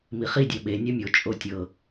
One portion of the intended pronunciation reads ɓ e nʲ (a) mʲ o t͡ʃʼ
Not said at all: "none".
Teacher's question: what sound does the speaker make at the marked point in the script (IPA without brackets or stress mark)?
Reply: a